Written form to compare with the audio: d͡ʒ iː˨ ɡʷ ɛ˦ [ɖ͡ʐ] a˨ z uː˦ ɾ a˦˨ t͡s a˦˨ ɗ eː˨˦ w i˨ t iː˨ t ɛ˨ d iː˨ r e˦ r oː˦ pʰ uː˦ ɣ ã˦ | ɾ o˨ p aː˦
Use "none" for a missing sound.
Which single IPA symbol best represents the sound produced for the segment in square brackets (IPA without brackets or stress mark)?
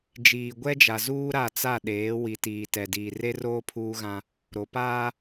d͡ʒ